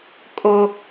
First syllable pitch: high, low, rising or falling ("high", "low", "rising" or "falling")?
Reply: high